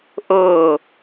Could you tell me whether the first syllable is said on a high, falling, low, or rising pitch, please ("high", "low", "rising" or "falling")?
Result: falling